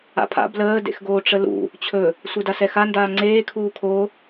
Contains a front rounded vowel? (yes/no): no